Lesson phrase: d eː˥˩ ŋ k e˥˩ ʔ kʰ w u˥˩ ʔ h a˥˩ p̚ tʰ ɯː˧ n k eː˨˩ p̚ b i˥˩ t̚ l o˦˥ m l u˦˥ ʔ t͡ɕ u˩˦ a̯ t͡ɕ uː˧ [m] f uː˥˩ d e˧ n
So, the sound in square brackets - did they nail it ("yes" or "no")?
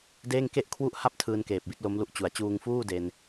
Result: no